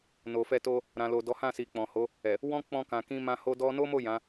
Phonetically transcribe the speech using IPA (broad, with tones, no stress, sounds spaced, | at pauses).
n o˨ f ɛ˧ t o˧ | ɾ ã˨ l o˨ d ɔ˨˦ h ã˦˨ s i˨ k͡p ɔ̃˨ h o˨˦ | ɛ˨ | w ɔ̃˦ k͡p ɔ̃˧ k ã˨ k ĩ˧ m ã˧ h o˧ d ɔ˧ n o˦ m o˦˨ j ã˨˦